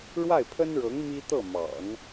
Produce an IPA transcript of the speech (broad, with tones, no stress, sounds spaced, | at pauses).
ɻ w a˥˩ ɪ̯ pʰ ə˥ n ɻ ɤ˧˥ ŋ m i˥ t̪ ɤ˥˩ m ɑ̰˨˩˦ ŋ